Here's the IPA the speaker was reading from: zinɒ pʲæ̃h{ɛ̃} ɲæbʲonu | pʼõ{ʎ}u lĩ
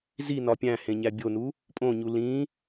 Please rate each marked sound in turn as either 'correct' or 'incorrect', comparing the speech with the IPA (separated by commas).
incorrect, incorrect